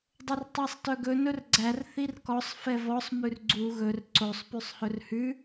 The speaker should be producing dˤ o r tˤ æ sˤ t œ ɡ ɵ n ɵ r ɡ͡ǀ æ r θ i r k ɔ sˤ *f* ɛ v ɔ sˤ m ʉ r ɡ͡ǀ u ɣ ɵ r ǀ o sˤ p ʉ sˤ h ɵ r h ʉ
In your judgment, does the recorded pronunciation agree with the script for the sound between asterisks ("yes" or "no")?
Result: yes